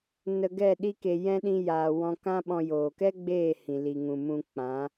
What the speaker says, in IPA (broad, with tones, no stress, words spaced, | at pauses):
nə˧ ɡɛ˦˨ɗi˦ke˧ jɛ̃˦ ɗĩ˦jaː˧wɔ̃˦ kã˦ɓɔ̃˧joː˨ kɛ˦ ɡ͡beː˦˨hĩ˨ li˨ŋũ˨mũ˧ k͡pã˨˦